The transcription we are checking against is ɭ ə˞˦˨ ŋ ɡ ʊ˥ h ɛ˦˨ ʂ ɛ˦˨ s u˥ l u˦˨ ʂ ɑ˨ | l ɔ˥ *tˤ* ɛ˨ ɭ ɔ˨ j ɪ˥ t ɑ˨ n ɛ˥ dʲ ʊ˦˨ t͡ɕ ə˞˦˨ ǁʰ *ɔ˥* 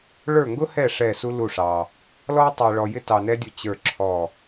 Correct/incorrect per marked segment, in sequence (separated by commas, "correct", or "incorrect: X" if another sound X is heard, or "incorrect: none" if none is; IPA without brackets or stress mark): correct, incorrect: ɔ˦˨